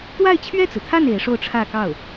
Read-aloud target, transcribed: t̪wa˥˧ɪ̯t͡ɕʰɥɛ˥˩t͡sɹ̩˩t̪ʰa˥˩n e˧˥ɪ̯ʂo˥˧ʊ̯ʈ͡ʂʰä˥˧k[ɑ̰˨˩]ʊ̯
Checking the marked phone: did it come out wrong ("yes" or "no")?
yes